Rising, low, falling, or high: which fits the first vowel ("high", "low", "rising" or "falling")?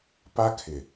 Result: high